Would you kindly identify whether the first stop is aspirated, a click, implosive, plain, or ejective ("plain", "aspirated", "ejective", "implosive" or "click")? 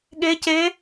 implosive